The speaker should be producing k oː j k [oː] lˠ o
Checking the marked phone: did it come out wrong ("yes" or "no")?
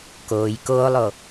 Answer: no